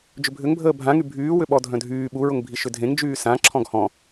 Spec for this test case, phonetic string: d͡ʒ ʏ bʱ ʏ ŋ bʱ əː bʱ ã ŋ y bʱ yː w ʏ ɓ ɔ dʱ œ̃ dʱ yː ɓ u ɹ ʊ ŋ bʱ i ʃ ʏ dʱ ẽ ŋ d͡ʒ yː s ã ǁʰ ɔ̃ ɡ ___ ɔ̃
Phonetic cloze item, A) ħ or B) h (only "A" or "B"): B